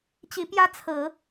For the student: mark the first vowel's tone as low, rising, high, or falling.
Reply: rising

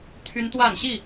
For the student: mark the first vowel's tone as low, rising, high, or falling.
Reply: high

